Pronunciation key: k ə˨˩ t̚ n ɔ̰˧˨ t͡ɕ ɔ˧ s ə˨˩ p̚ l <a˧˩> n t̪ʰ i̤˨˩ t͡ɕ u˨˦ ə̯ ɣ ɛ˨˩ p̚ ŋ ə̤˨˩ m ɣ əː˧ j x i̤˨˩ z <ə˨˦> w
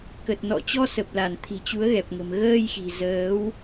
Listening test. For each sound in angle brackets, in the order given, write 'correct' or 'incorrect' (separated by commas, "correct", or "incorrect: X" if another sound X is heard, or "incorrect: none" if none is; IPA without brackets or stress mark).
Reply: correct, incorrect: əː˨˦